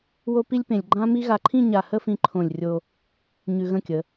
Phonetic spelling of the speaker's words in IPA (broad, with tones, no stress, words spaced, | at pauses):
wo˥pi˥lʲpẽ˧lʲ ɡ͡ǃã˥mi˥ ɣa˧ǃʰĩ˥˧ɲa˧˩ hə˥˧fĩ˧ ǃʰõ˧˩lʲrʲo˧ | ɲʉ˧ɣə̃˥˧kʲə˩˧